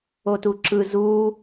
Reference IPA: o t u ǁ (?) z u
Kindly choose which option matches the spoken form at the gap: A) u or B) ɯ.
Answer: B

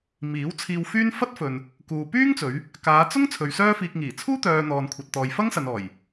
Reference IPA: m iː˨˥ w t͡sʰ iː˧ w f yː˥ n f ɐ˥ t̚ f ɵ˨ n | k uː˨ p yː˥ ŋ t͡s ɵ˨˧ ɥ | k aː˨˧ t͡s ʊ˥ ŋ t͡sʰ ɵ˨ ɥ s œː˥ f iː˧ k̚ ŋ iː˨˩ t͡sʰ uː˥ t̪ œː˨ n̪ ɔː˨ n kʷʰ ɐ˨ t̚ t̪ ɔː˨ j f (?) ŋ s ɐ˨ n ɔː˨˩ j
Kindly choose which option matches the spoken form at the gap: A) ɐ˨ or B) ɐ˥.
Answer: B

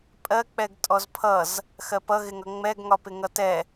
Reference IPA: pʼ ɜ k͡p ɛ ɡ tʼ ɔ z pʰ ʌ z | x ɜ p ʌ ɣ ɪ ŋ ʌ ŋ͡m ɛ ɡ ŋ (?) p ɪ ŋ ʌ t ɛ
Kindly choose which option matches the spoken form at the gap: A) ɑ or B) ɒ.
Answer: B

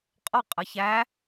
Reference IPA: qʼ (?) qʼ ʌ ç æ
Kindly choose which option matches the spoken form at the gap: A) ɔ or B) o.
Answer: A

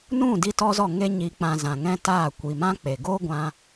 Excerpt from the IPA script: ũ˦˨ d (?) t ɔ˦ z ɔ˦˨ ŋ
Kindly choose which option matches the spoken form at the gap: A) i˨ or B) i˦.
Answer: B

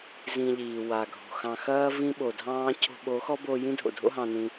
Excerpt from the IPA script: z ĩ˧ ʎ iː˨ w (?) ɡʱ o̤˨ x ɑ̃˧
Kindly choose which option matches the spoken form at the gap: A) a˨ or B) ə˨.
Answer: A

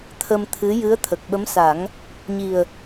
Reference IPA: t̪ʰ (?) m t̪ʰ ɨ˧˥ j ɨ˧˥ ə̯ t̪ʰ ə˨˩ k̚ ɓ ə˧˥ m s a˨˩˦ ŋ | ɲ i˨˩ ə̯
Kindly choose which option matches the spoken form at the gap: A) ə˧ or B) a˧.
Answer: A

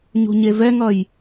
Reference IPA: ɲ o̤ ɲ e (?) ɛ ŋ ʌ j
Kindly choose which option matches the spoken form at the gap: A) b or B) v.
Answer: B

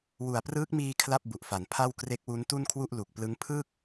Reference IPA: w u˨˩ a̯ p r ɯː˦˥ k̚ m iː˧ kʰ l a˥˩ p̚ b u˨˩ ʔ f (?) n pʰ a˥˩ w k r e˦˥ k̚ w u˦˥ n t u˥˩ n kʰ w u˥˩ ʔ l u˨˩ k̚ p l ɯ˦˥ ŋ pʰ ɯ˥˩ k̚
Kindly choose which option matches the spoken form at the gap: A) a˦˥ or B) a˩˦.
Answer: B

